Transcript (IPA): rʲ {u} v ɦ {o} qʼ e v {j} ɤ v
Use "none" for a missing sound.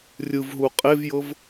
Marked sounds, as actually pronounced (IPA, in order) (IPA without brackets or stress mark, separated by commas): ɯ, u, j